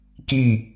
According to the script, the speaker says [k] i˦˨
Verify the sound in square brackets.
correct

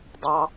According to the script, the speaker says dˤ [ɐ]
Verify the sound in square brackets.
incorrect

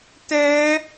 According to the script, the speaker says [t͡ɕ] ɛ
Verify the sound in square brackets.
incorrect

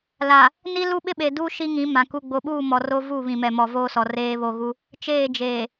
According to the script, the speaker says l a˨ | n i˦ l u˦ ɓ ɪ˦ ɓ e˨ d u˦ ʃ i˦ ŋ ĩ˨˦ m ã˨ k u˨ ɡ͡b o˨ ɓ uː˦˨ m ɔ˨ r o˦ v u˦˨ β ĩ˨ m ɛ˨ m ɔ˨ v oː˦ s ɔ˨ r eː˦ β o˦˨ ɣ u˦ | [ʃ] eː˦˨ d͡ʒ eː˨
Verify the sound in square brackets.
incorrect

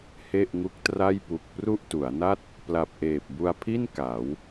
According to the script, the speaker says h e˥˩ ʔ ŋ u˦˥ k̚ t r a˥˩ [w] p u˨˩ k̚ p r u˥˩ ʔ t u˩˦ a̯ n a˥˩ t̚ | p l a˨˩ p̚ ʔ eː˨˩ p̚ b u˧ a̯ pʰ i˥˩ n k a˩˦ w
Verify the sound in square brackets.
incorrect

